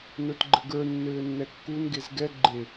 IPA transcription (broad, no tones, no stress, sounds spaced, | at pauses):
n ə˞ t ɡ͡ǃ ɘ ɡ ə˞ nː ɘː nː ɛ kː u n ɡ e z ɡ ɛ ɡ͡ǃ e